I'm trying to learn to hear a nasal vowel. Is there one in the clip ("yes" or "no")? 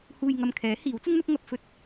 no